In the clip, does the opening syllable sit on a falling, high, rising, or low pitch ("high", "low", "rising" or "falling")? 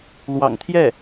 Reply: low